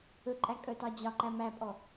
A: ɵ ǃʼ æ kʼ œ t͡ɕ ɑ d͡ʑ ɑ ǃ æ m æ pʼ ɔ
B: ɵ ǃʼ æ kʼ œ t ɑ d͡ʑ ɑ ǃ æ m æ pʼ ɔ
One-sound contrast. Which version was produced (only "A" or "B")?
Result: B